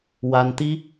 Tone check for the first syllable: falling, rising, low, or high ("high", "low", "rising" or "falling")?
high